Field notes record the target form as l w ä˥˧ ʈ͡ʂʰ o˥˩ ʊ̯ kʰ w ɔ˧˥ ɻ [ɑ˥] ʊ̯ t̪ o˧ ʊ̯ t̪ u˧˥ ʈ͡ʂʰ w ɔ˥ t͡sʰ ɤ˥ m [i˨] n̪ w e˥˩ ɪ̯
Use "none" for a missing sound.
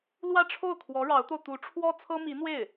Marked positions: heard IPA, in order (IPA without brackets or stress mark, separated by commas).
ɑ˧˥, i˧˥